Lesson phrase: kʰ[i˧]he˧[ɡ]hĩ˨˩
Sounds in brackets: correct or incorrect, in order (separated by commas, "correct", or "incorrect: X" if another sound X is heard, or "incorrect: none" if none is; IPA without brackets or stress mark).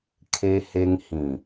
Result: incorrect: e˧, incorrect: ŋ